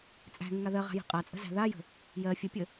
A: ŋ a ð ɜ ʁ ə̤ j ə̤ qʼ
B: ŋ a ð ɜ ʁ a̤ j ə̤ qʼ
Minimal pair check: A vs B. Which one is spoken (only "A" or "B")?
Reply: B